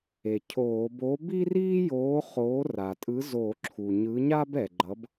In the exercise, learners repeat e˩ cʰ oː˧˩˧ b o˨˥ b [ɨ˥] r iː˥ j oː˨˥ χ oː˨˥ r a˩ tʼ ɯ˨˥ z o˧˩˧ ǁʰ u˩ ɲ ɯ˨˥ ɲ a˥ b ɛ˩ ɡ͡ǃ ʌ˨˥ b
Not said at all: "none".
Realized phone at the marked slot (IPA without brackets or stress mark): i˥